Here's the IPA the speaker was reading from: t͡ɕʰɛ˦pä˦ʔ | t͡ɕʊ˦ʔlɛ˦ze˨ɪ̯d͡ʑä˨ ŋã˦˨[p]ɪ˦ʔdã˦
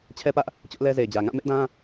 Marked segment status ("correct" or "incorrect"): incorrect